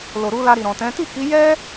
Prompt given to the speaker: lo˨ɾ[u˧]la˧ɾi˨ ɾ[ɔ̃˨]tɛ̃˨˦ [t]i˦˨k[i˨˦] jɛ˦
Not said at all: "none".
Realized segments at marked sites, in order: u˧, ɔ̃˨, t, i˨˦

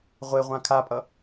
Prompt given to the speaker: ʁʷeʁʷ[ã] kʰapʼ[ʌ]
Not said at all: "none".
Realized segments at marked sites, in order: ã, ʌ

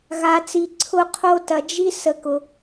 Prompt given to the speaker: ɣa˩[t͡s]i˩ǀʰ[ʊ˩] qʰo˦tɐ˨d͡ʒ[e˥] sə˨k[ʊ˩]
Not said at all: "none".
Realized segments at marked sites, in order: t͡s, ʊ˨, i˥, ʊ˩

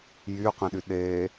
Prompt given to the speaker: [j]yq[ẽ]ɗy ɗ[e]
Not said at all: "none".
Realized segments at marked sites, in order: j, ẽ, e

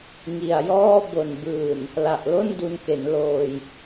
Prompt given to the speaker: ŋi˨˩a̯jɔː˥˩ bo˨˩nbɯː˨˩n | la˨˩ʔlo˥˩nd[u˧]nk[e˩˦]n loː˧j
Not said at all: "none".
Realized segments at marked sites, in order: u˧, e˩˦

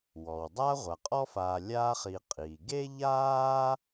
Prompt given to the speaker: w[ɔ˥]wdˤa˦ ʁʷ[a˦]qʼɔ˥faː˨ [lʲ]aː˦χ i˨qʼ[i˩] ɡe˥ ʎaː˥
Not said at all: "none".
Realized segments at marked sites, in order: ɔ˩, a˩, lʲ, i˩

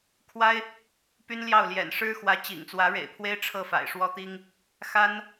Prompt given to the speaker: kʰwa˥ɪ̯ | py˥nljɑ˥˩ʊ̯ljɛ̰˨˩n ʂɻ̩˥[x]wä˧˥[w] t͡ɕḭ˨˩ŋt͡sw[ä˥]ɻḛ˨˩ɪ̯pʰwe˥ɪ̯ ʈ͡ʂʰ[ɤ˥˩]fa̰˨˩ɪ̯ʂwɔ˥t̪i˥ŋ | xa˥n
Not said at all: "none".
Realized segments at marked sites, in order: x, none, ä˧˥, ɤ˥˩

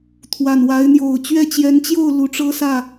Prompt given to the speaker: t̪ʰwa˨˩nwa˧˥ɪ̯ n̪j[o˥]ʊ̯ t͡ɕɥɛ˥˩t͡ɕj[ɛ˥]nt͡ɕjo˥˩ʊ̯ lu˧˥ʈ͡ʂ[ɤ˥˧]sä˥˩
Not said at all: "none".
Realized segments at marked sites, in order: o˨˩, ɛ˧˥, ɤ˥

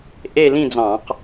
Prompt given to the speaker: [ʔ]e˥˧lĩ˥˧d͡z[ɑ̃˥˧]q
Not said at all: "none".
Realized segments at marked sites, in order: ʔ, ɑ̃˧˩˧

